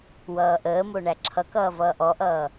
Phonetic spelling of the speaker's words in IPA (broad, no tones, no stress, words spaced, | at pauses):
wʌːʔəːmo ɳæǁʰʌkʌː vʌːʔɔʔʌː